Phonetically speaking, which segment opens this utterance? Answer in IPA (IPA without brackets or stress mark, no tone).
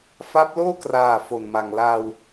f